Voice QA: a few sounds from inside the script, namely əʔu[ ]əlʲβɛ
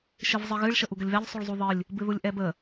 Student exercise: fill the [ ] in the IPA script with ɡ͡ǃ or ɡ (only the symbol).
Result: ɡ